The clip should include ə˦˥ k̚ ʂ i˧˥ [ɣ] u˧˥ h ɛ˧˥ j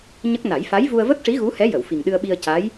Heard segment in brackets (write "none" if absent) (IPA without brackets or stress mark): ɣ